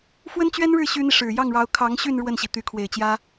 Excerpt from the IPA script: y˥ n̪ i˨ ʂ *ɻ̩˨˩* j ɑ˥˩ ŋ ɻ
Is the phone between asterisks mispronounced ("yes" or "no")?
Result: no